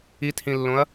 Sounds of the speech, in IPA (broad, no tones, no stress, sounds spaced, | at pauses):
i t h ĩ lː õ ɐ̯